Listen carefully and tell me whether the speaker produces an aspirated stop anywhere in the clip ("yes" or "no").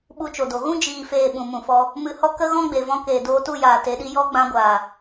no